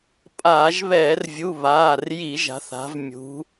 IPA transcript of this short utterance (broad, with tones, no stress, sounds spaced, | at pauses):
pʼ aː˧˩˧ ʒ β ɛː˧˩˧ r vʲ u˩˧˩ β aː˩˧˩ r j i˧˩˧ ʒ a̤˩˧ θ a̤˩˧ v mʲ ṳ˩˧